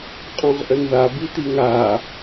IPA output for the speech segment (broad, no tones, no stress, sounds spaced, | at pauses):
qʼ ɔ̃ ʁ ʔ ə n ð a b i t̪ i ŋ aː